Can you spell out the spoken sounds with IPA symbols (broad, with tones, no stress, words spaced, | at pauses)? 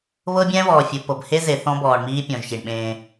βɤ˦ bʲɛ̃˦βɔː˨fʲu˨ pɤ˨bhe˦ ze˨θɔ̃˦bɔː˨ɳmiː˦ pʲɔ̃˨ʒçi˨ɳɓẽː˦